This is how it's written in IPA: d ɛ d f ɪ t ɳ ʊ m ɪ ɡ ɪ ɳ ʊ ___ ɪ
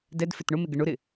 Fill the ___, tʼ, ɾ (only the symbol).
ɾ